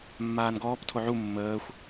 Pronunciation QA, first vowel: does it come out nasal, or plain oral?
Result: oral